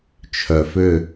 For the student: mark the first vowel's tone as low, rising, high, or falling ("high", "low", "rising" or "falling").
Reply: low